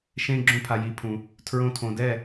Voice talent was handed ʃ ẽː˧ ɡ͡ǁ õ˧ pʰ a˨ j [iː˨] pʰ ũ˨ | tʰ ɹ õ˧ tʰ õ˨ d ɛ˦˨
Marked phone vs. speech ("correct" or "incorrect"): correct